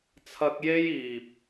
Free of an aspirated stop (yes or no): no